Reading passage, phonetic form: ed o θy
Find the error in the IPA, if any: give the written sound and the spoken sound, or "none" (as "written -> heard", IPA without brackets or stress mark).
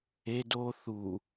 y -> u